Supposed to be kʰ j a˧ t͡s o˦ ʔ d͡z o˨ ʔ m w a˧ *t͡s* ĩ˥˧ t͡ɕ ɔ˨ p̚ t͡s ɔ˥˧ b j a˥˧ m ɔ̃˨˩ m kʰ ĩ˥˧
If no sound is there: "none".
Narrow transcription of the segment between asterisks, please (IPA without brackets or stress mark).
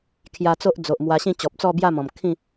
ɕ